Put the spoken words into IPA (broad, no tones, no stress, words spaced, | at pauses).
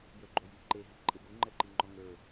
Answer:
jə˞ɡ͡ǃoji ǃe ɦiǃʼeɡu ŋ͡ǃɛǃiŋ͡ǃɔŋə˞